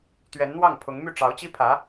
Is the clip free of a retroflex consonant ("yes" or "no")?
no